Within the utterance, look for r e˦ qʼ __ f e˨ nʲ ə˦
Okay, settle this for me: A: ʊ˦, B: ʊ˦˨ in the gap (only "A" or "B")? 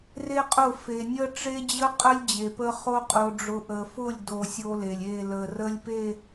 B